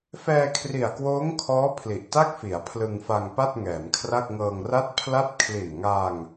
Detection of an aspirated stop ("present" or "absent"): present